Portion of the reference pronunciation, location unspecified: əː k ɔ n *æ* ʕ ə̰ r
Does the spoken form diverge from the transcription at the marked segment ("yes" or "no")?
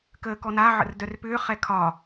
yes